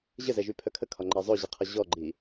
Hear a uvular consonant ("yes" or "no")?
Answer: yes